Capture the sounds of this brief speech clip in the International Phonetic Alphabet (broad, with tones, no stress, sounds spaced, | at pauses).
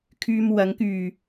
kʰ yː˧ m w ɐ˨˥ ŋ k yː˨˩